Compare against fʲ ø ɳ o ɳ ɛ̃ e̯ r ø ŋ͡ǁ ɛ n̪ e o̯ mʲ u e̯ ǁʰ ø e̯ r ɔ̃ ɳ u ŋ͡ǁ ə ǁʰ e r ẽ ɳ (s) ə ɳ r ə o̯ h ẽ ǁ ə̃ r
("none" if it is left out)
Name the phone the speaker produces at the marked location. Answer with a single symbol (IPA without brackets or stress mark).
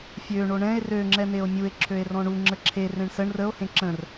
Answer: s